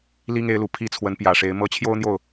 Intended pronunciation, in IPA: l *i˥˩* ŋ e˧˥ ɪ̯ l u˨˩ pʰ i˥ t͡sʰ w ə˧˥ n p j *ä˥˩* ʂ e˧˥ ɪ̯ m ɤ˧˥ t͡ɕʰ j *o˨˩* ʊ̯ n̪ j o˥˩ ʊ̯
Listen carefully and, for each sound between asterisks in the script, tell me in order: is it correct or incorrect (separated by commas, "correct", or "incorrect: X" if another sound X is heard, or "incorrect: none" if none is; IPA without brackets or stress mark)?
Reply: incorrect: i˥, incorrect: ä˨˩, incorrect: o˥